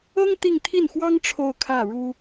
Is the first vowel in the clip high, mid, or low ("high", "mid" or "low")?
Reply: mid